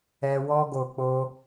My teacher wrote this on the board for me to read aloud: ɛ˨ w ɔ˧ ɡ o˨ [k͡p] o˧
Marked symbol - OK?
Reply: yes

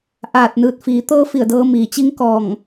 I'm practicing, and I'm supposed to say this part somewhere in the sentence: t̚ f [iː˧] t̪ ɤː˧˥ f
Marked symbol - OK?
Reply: no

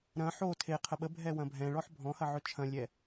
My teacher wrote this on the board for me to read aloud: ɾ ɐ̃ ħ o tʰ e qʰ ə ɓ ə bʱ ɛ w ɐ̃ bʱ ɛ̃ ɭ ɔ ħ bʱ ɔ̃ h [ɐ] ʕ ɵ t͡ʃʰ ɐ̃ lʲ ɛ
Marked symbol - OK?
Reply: yes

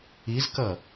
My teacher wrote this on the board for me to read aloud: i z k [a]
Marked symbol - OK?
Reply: no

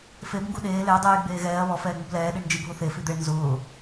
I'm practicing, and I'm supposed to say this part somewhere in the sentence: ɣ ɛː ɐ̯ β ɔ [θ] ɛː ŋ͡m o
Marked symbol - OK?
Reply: no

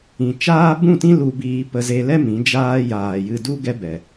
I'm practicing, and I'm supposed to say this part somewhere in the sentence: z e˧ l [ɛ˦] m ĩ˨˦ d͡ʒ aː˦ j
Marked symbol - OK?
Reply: yes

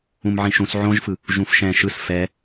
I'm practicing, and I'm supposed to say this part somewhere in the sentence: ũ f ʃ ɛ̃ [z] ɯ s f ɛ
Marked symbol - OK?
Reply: no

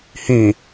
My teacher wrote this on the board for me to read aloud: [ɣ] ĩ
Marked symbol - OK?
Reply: no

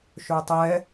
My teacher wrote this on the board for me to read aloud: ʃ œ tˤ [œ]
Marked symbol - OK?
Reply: no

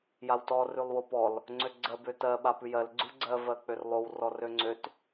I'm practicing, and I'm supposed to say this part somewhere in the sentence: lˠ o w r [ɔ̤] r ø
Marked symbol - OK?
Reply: no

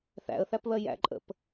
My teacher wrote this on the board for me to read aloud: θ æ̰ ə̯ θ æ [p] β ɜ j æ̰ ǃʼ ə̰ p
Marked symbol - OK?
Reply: yes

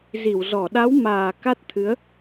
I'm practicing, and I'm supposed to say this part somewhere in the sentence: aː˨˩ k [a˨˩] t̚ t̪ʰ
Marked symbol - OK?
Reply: no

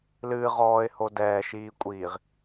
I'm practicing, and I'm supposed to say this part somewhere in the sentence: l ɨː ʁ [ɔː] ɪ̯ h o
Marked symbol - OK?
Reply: yes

